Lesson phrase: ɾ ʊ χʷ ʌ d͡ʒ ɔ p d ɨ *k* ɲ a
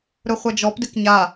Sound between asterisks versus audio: correct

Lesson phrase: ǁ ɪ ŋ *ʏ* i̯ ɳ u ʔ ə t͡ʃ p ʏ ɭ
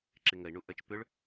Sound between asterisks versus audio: incorrect: ə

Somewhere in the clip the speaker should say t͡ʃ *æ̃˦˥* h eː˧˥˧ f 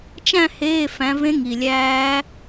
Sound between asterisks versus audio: incorrect: æ̃˥˧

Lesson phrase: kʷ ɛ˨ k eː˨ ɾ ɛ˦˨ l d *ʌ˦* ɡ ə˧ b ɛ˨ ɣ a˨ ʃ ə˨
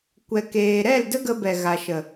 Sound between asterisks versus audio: incorrect: ə˦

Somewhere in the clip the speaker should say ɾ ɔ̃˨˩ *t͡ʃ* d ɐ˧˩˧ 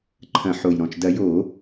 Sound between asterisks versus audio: correct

